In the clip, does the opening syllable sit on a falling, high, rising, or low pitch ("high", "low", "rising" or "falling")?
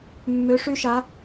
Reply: rising